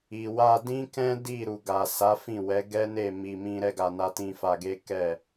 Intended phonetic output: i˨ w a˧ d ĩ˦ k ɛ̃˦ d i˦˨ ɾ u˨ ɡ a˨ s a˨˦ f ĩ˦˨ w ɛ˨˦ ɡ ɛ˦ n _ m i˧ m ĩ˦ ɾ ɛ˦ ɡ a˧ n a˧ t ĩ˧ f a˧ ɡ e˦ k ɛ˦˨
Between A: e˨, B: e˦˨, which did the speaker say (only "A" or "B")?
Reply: B